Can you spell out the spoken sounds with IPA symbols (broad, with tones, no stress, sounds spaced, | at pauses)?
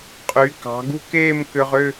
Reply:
qʼ y˩˧ k ɑ̤˩˧ ɡ ṳ˥˧ k eː˥˧ m k ʏ˧ ʁ ʏ˥˧